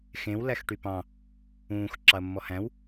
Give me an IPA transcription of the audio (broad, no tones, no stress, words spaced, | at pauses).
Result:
xẽw læxʈypɑ̃ | ũːx ǁɑɐ̯mːɔhæ̃w